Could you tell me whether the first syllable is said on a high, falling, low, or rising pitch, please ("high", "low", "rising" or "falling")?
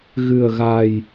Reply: low